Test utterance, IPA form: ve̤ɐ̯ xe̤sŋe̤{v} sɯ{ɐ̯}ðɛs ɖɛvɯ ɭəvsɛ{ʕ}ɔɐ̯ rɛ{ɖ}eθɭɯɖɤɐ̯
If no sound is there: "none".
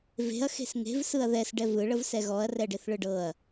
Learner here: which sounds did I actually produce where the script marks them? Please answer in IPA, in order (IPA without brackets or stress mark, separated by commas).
v, ɐ̯, ɣ, ɖ